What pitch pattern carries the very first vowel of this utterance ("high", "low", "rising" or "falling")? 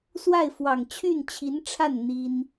falling